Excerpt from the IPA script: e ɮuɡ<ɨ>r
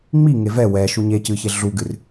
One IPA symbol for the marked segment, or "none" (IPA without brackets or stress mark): ɨ